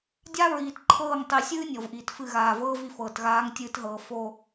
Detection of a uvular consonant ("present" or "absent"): absent